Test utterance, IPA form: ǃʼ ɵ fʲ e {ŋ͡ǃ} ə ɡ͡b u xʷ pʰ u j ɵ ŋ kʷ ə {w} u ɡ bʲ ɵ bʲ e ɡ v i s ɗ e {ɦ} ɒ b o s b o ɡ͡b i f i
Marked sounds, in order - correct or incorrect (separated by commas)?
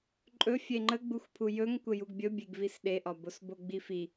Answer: correct, incorrect, incorrect